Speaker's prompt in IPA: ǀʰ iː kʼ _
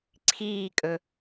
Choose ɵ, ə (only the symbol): ɵ